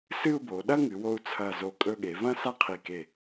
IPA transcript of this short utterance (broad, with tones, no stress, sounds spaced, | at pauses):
s ɨ˥˧ u̯ b o˩˧ ɗ ɐ˥ ŋ ɨ˩˧ w o˧ u̯ t͡sʰ ɐ˧˩ z o˧˩ kʼ ɵ˧ ɠ e˩˧ v ɐ̃˥ s a˥ qʰ i˧˩ k e˧˩